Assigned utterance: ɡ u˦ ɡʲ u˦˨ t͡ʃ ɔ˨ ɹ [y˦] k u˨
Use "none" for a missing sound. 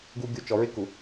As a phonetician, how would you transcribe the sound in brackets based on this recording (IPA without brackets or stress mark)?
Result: ɪ˦